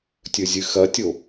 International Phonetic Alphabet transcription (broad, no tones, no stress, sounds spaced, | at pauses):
tʲ ɵ zʲ ɨ x ɐ tʲ o